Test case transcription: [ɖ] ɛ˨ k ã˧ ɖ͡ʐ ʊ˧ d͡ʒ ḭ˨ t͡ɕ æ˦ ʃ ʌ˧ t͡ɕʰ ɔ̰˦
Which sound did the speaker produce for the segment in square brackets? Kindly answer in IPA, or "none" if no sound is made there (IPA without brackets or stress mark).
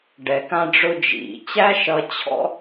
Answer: ɖ